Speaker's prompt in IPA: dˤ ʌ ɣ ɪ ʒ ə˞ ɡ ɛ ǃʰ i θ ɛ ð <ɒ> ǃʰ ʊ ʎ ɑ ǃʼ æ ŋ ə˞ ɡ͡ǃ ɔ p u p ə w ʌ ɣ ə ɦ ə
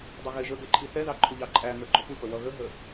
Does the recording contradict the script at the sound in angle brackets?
yes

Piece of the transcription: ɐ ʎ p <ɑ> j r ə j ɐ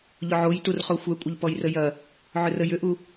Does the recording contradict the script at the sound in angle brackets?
yes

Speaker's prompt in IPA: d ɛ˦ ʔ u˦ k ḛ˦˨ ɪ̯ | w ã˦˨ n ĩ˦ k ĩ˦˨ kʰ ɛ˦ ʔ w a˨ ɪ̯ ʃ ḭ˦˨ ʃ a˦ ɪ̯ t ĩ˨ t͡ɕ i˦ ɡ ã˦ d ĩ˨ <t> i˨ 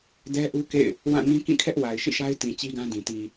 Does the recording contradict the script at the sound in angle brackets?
no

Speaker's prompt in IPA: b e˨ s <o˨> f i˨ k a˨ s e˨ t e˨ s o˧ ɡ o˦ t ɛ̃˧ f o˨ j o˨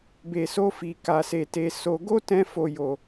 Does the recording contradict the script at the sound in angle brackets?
yes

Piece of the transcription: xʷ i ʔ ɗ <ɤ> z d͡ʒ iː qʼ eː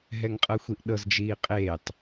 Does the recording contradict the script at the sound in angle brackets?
no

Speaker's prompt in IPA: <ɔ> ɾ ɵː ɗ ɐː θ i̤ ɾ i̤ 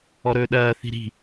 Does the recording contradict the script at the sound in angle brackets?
no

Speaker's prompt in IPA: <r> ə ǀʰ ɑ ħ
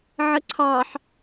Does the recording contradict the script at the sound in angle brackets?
yes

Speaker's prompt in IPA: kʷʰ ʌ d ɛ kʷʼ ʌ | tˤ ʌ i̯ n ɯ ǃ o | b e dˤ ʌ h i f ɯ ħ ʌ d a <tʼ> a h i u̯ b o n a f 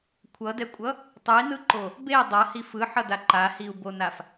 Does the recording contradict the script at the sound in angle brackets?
yes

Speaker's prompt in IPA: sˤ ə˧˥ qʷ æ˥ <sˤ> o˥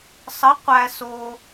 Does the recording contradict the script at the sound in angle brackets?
yes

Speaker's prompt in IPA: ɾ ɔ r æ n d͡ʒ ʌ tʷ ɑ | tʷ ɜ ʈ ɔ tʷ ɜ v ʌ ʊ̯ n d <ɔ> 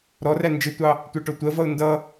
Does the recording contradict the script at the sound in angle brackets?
yes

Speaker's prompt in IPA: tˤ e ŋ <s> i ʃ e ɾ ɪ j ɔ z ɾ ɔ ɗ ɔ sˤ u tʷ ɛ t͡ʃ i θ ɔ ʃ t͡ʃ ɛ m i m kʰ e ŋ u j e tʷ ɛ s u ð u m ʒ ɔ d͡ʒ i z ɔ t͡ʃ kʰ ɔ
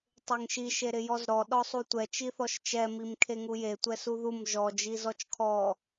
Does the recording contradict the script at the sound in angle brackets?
yes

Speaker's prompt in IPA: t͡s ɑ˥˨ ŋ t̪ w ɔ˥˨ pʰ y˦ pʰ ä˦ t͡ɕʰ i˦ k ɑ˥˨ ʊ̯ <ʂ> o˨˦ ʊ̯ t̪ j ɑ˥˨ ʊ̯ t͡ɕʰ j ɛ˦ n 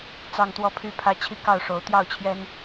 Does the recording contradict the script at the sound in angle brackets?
no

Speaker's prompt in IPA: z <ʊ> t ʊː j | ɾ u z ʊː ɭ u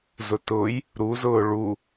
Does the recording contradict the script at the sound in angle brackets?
no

